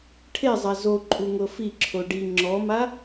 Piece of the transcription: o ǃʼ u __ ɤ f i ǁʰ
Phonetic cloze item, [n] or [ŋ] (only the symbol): ŋ